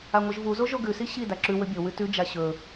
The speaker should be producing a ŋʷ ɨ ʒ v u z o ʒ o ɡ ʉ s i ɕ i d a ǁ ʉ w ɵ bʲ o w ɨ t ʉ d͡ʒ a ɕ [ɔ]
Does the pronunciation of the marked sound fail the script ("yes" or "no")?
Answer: yes